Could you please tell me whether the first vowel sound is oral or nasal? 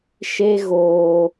oral